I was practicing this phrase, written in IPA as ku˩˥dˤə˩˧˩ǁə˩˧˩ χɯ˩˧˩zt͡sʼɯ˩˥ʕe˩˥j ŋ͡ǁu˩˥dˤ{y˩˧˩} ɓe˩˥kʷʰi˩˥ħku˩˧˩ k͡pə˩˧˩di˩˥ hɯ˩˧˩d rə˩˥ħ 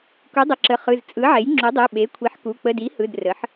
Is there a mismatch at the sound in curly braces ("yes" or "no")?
yes